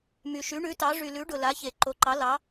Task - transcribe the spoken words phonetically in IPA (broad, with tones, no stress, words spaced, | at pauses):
my˩ʃy˩˥ɳʉ˩˥tɑ˩˥ ʐy˩lʉ˩˥ɖʊ˩ la˩˥çe˩ ǃo˩˥ǃɑ˩˥lɑ˩˥